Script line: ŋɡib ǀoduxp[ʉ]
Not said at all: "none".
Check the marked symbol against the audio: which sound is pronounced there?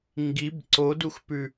ʉ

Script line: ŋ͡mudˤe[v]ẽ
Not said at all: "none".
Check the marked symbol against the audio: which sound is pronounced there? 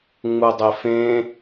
f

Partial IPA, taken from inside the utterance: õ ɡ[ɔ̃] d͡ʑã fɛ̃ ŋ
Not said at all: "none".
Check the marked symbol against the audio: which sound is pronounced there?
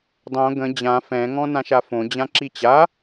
ə̃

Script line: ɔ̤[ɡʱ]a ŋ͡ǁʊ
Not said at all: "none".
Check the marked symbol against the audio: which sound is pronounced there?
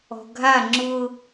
ɡʱ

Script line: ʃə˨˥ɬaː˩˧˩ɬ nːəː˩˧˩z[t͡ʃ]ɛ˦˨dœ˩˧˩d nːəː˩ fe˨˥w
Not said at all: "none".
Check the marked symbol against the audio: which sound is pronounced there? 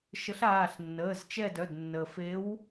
t͡ʃ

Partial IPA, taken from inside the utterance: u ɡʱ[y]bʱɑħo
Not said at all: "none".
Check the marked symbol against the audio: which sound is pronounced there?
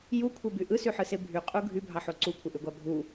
y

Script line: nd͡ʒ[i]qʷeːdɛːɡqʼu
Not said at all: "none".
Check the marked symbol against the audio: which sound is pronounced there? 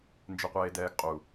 ɪ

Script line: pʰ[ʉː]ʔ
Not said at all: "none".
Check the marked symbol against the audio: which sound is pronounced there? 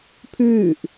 ʉː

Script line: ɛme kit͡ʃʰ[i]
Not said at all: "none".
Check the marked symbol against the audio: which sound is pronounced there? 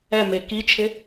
ɪ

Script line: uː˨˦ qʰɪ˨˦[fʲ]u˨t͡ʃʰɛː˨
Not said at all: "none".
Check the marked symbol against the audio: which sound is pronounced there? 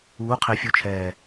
fʲ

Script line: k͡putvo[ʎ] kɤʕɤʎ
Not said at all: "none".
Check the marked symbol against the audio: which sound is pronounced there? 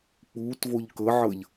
ʎ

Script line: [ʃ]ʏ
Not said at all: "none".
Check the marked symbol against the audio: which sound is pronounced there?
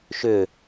ʃ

